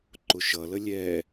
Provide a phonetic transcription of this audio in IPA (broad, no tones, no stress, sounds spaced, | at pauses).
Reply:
ǃ ʊ ʃ ʌ l ə lʲ ɛ